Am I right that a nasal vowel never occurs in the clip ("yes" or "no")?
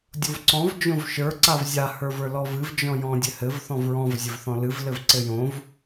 no